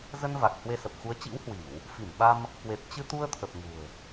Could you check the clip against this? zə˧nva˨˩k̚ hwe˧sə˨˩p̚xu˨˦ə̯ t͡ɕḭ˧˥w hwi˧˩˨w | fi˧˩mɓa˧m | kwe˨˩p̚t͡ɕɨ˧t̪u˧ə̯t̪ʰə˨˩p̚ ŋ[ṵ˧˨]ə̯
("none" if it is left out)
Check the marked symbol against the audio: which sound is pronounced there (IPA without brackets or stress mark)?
ṳ˨˩